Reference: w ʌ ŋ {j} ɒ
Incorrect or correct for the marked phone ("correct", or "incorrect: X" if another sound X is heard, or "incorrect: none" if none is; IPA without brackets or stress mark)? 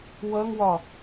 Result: incorrect: w